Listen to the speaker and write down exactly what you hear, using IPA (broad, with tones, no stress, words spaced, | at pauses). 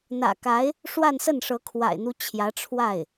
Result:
n̪ä̰˨˩ka˧˥ɪ̯ | ʂwa˥˧nsə˥˩nʂɤ˧˥ kʰwa̰˨˩ɪ̯n̪u˧˥ t͡ɕʰjä˧˥ʈ͡ʂʰwa˥˩ɪ̯